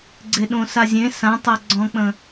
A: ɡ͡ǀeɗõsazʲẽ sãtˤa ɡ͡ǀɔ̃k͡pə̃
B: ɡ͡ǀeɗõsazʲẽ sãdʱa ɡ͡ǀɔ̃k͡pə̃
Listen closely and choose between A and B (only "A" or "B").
A